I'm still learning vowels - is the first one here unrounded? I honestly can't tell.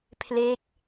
yes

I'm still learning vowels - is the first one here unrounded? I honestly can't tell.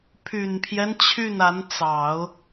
no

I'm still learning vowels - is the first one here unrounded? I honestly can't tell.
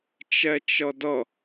yes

